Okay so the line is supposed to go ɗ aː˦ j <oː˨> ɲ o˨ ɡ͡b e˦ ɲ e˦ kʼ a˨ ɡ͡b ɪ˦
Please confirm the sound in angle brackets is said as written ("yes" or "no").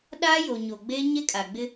no